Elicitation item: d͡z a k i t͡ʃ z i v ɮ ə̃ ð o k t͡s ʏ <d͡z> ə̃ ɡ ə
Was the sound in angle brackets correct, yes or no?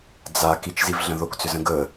no